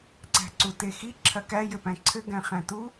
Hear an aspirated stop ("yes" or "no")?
yes